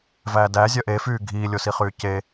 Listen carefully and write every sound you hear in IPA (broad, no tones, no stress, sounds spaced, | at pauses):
v æː d æ zʲ œ ʔ e f yː ɡʱ iː lʲ o s i χ yː c e